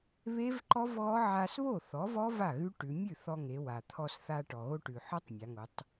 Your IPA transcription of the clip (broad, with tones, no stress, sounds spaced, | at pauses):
β e˦˥ v ǃ ɔ˦˥ v ɣ ɔ˦˥ ʕ a˧ s β o˥˩ θ ɔ˩˥ v ɔ˦˥ v a˥˩ ɣ ʉ˦˥ ʈ ʉ˩˧ mʲ ʉ˥˩ θ ɔ˧ ŋ e˩˧ w a˩ t̪ʰ ɔ˧ s θ a˧ ʈ ɔ˩ ɣ o˧ ʈ ʉ˩ ħ ɔ˦˥ tˤ mʲ a˩˧ ŋ o˩˧ tˤ